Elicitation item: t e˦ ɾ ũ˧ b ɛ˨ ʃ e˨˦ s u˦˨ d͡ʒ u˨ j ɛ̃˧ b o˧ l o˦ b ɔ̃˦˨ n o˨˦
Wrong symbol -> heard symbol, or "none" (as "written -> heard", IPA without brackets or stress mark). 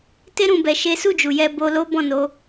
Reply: ɛ̃˧ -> ɛ˧